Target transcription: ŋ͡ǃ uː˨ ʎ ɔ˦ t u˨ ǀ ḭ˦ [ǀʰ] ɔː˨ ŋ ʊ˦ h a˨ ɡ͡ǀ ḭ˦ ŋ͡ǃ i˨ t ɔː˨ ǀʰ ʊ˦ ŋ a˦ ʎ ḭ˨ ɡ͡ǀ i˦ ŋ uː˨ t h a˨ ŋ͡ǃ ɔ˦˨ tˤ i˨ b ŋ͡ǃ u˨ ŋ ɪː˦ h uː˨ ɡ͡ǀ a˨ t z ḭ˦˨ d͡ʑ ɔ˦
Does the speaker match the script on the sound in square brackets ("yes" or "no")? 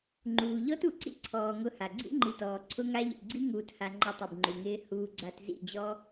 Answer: yes